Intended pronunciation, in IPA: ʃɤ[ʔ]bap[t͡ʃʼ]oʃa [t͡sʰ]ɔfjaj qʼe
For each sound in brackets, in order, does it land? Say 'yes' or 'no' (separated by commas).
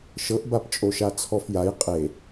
yes, yes, yes